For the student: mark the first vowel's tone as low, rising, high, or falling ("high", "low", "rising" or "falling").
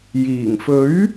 low